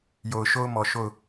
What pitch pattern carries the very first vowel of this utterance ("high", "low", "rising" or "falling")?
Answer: low